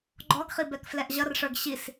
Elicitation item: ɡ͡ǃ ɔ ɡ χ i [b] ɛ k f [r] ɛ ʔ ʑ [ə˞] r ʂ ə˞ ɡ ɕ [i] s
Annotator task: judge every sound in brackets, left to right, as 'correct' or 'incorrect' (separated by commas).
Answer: correct, incorrect, incorrect, correct